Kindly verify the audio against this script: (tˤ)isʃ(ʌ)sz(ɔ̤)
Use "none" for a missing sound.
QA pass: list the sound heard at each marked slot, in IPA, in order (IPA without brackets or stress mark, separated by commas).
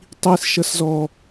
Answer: tˤ, ʌ, ɔ